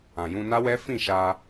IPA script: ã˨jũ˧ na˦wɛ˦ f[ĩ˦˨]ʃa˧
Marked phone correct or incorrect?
correct